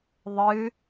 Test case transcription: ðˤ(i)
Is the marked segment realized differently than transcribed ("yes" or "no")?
yes